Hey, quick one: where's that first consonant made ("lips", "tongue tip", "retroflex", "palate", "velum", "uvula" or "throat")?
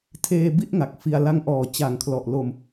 tongue tip